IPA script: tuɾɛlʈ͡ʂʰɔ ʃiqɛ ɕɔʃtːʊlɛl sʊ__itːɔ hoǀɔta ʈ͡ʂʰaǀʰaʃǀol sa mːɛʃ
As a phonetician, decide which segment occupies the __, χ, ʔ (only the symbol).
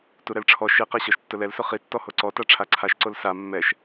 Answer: χ